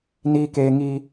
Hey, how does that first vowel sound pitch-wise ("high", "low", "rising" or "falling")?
high